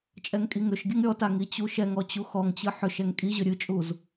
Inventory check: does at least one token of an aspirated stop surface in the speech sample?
no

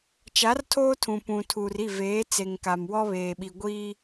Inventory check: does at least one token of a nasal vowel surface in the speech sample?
yes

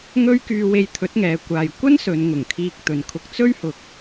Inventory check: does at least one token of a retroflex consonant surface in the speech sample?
no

